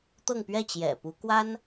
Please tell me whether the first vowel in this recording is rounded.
no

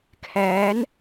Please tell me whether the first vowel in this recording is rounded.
no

